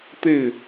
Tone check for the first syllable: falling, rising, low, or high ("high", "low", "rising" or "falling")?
falling